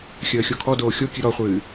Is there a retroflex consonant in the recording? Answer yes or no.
no